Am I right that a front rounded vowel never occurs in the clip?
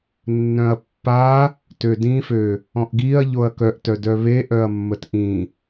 no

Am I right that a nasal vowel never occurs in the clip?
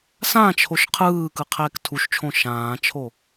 no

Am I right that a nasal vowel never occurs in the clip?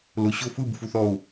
yes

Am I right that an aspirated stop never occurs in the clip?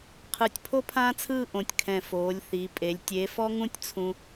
no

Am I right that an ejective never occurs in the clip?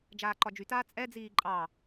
no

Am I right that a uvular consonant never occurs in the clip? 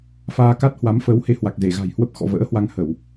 yes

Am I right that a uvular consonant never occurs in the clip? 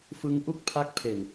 yes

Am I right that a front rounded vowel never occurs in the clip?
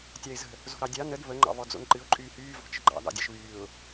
no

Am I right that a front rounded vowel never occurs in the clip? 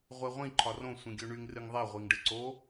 no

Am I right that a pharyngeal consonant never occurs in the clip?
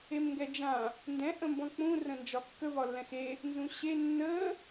yes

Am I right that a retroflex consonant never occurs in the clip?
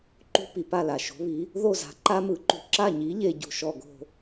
yes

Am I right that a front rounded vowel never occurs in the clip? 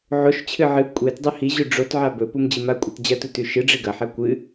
yes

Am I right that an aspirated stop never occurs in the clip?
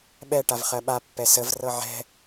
yes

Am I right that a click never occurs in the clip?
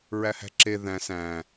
no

